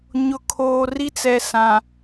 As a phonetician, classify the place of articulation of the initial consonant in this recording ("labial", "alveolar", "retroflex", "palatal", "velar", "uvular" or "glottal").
palatal